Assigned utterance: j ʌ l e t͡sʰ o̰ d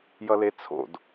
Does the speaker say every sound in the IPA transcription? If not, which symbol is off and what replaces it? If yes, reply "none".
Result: none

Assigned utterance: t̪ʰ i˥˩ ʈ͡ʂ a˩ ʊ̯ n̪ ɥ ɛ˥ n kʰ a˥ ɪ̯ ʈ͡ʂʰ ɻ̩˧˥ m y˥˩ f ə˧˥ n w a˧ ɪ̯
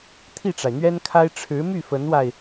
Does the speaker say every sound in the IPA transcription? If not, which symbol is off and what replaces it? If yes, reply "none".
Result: ʊ̯ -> ɪ̯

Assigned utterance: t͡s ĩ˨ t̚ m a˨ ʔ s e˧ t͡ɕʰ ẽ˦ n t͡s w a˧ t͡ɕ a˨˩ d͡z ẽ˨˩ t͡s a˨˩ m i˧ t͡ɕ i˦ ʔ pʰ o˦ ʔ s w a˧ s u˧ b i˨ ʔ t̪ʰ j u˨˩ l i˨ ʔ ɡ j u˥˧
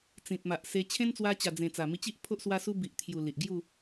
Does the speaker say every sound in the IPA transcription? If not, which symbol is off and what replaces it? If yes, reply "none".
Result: none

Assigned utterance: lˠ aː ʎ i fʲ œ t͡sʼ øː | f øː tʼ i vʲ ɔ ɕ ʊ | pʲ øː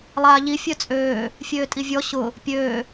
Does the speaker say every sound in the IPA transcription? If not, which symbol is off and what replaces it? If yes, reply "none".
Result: f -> fʲ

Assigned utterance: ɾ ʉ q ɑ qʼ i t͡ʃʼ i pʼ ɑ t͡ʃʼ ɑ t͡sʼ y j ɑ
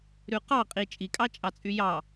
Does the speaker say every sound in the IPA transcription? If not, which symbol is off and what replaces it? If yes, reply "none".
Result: pʼ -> kʼ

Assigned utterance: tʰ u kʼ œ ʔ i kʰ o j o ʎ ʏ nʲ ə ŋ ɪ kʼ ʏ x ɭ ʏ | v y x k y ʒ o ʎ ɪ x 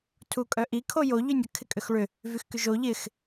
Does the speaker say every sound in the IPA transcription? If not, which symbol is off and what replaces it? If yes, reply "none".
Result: ŋ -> kʰ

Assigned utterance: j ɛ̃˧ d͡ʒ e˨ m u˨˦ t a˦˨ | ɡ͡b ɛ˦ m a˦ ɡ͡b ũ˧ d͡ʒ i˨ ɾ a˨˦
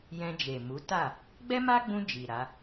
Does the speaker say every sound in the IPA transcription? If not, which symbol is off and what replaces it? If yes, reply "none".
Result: none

